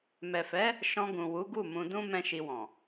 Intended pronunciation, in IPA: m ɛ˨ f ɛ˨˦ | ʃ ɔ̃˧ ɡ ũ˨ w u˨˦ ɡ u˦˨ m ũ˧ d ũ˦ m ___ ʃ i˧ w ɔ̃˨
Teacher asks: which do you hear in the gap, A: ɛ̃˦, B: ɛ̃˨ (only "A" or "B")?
A